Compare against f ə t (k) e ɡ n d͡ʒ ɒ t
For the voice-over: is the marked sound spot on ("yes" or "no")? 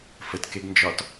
yes